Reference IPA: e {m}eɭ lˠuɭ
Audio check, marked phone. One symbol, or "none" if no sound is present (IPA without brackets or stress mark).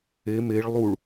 m